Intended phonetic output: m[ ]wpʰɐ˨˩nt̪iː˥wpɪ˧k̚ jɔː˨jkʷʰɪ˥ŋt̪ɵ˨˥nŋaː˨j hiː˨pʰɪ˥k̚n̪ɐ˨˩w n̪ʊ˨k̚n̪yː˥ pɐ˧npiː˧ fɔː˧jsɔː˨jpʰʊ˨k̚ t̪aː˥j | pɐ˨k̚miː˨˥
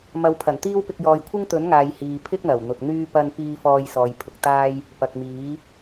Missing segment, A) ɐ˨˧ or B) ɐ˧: A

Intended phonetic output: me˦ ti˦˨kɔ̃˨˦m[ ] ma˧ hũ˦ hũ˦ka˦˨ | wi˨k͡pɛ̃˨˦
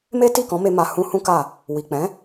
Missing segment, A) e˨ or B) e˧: B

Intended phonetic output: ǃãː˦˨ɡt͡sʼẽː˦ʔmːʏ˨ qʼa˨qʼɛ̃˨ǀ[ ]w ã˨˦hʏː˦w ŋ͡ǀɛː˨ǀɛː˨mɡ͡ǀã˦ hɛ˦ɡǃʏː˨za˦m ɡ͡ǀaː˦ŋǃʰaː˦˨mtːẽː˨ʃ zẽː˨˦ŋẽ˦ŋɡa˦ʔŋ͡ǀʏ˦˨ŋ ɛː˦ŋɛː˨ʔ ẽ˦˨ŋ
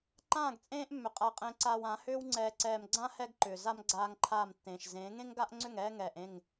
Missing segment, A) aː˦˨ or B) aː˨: B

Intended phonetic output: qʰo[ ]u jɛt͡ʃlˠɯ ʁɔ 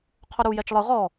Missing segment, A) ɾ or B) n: A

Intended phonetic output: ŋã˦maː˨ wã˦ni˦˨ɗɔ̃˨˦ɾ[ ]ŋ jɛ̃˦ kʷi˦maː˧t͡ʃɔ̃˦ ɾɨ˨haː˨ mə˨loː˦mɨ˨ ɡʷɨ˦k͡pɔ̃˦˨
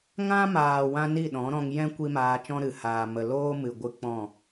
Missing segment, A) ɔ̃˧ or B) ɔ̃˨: A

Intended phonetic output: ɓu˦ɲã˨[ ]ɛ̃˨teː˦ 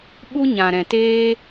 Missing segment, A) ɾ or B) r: A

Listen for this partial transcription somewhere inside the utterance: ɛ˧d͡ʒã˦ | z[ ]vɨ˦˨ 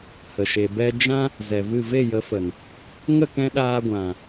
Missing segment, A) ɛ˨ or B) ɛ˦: A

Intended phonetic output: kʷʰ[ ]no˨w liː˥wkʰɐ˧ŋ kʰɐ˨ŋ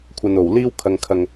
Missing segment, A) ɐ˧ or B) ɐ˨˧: A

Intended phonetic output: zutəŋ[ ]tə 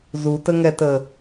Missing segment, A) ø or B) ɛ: B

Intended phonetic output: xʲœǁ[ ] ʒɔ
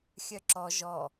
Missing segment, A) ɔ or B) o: A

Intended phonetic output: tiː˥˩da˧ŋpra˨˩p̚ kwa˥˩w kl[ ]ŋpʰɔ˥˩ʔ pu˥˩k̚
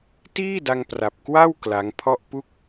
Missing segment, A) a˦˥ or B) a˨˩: A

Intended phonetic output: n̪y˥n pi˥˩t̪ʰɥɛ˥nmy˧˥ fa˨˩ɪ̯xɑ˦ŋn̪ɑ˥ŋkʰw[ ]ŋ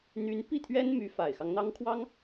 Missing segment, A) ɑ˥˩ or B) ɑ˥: B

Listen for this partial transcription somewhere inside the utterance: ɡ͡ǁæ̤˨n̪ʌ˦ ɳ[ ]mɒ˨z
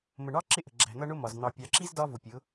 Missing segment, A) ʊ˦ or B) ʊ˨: A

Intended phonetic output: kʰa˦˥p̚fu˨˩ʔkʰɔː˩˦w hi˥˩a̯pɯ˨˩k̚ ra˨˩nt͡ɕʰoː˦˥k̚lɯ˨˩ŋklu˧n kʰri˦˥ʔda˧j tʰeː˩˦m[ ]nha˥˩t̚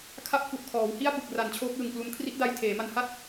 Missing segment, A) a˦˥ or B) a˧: B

